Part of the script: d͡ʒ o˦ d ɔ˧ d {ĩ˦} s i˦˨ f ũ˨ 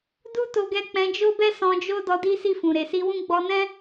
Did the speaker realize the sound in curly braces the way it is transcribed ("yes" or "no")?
no